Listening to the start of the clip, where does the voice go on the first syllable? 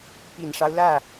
low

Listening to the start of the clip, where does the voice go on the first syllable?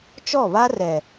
falling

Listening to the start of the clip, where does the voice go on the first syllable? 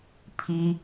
high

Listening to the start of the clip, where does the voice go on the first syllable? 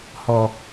low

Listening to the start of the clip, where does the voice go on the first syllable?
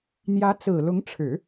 rising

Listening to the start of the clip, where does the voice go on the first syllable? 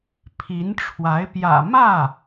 rising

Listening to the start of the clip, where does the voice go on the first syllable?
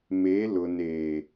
rising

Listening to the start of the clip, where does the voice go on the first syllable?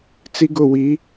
high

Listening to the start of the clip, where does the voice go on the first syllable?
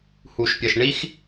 low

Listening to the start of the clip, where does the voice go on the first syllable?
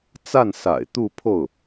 falling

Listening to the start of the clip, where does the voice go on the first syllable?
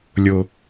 high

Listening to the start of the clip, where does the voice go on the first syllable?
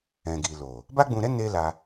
low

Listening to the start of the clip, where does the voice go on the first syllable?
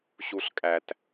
low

